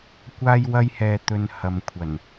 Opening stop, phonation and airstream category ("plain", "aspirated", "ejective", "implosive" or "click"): plain